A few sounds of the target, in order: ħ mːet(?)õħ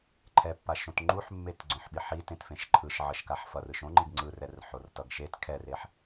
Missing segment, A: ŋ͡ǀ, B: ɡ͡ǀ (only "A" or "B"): B